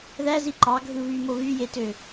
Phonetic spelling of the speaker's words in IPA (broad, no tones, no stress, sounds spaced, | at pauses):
ð æ z i ǃ ɑ ɡʱ ɯ β y m o β y j e t ø